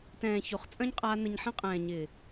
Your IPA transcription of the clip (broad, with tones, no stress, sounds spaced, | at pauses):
t ɛ̃ː˨ ç o˨ χ t͡sʼ ɐ̃˦ ɲ qʼ aː˧ n ə˧ ɲ ħ ɐ̃˦ qʼ ɛ̃ː˨ ɲ ɪ˨